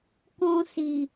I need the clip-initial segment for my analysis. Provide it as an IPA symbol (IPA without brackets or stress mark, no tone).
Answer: k